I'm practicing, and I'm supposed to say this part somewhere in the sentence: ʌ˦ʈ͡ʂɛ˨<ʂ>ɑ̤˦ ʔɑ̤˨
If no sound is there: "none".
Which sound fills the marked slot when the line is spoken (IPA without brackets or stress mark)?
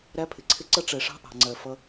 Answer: ʂ